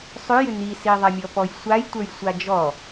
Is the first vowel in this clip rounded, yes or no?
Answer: yes